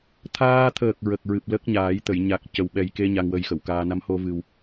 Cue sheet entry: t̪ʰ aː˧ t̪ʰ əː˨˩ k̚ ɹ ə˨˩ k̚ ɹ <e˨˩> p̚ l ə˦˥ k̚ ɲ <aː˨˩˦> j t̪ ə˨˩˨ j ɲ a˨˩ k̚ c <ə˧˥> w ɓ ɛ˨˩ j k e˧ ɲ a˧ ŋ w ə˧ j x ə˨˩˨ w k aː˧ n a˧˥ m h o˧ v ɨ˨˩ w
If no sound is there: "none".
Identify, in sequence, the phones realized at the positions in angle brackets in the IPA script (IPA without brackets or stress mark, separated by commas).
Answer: ɨ˨˩, aː˨˩˦, ə˨˩